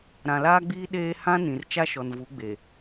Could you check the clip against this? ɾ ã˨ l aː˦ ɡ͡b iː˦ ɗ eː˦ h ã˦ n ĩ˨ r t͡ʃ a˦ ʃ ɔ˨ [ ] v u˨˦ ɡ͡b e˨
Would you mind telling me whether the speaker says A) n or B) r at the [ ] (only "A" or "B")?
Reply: A